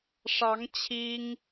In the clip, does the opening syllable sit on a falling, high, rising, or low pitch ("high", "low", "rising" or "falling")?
rising